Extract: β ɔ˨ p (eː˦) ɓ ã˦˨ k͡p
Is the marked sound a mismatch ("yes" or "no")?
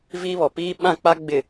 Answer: yes